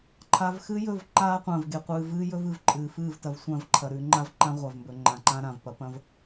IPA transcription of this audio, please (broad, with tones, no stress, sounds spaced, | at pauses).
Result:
ǃʰ a˨ v x ɨ˦ j ɵ˦˨ v ǃ aː˦ qʷ ɐ̃ː˨ v ɡ e˨ qʷ ɨː˨ v ɨː˦ j ɵ˦ v ɨ˨ v ǃʼ ɨː˨ f ɨː˦˨ v t ɐ˨ v sʷ ã˦˨ v ǃʰ ɐ˨ ɾ ʉ˨˦ ŋ͡ǃ a˦ v ǃ ã˦ ʁʷ a˨ v m b ɵ˨ ŋ͡ǃ ã˨ ǃ ã˦ ɾ ã˨ v p ɐ˦ p ɐ̃˦ v